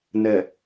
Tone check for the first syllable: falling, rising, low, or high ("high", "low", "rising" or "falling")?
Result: low